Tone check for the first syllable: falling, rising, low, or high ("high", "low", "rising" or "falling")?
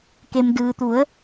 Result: low